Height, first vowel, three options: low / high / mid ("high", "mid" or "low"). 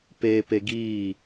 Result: mid